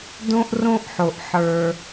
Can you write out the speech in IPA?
d õ˥ ʔ r õ˥ ʔ ħ o˩ ʔ ħ ə˞˩

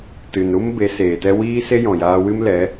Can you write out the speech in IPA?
t ɨ˨ n ɾ u˦ m b e˨˦ s eː˨ t ɛ˦ w iː˦ s e˦ j ɔ̃˨ j aː˧ w ɨ˦ m l ɛ˨˦

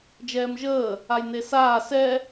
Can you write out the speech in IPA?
d͡ʒ ɛː m ʒ əː | a j n e s aː s ɛ

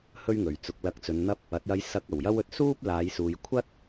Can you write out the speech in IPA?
h ɵ˥ ɥ ŋ ɵ˨˩ ɥ t͡s ʊ˧ k̚ l ɐ˧ k̚ t͡s ɵ˨˧ n n̪ ɐ˥ p̚ | ɐ˨˥ t̚ j ɐ˧ j s ɐ˧ k̚ ɐ˨˩ w j ɐ˥ w ɵ˨ t̚ s uː˥ p̚ l aː˨˧ j s uː˨ j kʷʰ ɐ˥ t̚

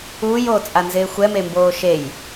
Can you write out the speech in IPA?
uː j oː t͡sʼ a n z ɪː xʷ ɛ m e m b oː ʃ e j

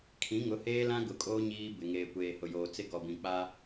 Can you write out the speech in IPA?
kʰ ĩ˨˦ ŋ ʊ˨˦ h eː˦ l ã˦ ɡ ʊ˨ kʼ oː˦ ɲ iː˦ b ɪ˨ ŋ eː˨ kʷ eː˨ h ʊ˨ j oː˨ t͡s ɪ˦ ɡ ɔ˨ b ĩ˨ k͡p a˦

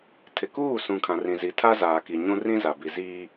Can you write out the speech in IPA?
tʰ ɪ˨ k uː˦˨ s ũ˨ kʰ ã˨ r ĩ˨ z i˨ tʰ a˦ z aː˨ k i˨ ɲ ũ˦ r ĩ˦ z a˨ b i˨ z iː˦

